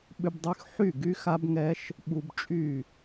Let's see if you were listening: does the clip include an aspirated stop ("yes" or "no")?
no